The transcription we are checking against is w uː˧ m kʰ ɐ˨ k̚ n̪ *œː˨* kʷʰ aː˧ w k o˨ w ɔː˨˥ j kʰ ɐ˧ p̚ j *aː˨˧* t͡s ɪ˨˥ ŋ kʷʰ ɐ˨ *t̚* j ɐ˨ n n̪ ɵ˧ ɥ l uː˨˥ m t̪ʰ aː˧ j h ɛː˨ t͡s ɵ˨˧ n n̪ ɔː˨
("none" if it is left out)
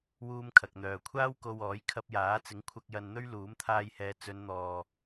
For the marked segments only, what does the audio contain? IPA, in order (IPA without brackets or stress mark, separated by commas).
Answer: œː˨, aː˨˥, k̚